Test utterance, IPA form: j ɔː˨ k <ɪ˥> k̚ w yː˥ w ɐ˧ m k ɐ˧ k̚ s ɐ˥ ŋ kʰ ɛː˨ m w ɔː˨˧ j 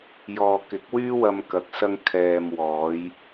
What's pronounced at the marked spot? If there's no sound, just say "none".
ɪ˨˥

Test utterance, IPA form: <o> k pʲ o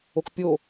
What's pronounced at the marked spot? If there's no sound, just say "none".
o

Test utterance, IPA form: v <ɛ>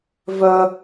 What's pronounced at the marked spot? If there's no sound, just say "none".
œ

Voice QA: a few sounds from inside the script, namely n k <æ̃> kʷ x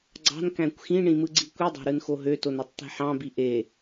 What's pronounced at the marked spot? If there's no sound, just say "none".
æ̃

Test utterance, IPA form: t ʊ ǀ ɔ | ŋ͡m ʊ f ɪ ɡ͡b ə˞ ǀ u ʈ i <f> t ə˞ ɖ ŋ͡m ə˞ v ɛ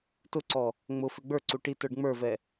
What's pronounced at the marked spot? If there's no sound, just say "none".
none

